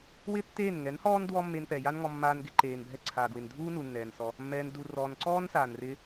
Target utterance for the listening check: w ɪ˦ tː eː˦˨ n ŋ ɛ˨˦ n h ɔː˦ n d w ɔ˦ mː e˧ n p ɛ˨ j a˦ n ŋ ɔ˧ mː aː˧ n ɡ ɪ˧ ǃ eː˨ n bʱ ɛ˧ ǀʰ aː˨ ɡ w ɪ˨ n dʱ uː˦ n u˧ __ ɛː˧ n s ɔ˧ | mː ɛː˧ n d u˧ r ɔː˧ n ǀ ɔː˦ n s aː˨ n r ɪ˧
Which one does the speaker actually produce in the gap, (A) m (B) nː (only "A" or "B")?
B